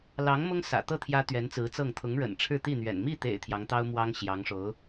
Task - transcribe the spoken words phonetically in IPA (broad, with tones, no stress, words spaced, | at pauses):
lɑ˧˥ŋ mʊ˥ŋsä̰˨˩t̪ɤ˥˩ t̪ʰjä˥t̪ɥɛ˧˥nt͡sɹ̩˧˥t͡sɤ˥˩ŋ t̪ʰʊ˧˥ŋɻə̰˨˩n ʈ͡ʂʰɻ̩˥˧t̪i˥˩n̪ɥɛ̰˨˩n mi˥˩t̪ḛ˨˩ɪ̯ t̪ʰjɑ˧˥ŋt̪ɑ˥ʊ̯ mwɑ˥ŋɕjɑ˧˥ŋʂo˧˥ʊ̯